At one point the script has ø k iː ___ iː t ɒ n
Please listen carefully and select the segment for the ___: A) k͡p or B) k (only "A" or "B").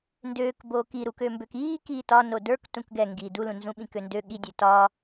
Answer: B